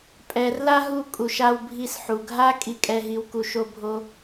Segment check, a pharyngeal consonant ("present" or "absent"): present